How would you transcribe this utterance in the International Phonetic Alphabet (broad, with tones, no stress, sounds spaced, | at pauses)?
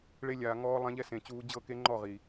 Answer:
ɭ e˧ lʲ aː˨ ŋ ɔː˧ lˠ ã˧ ʎ ɛ˦ s ẽ˨ t͡ɕ uː˧ d͡ʑ ɤ˦˨ k e˦ ŋ͡ǃ ɔ˦˨ ʁ i˨